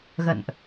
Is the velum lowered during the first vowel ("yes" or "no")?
no